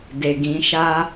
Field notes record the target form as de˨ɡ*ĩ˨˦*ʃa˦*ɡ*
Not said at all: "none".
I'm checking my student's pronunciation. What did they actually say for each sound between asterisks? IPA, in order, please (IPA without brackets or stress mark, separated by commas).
ĩ˨˦, none